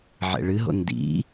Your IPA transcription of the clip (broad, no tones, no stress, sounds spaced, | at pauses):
ʕ ɛ̰ ɭ ɨ ɦ o̰ n d ḭ